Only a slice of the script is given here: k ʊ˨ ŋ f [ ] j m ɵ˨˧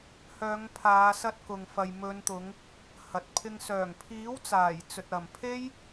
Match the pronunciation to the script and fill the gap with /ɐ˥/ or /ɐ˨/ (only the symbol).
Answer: ɐ˨